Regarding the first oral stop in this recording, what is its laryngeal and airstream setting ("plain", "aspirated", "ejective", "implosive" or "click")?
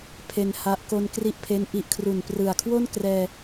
aspirated